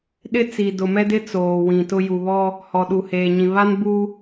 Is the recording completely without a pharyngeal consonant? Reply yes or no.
yes